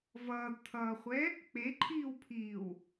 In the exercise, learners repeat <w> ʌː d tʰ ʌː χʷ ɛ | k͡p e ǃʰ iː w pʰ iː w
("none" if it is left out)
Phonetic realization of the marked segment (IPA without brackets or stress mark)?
v